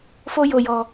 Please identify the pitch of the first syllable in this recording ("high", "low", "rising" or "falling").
high